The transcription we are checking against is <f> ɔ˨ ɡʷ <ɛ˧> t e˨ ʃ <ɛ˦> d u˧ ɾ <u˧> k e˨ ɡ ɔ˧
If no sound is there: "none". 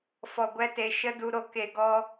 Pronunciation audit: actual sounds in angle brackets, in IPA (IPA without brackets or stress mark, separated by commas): f, ɛ˧, ə˦, o˧